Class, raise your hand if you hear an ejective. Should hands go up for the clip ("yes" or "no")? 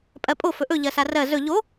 yes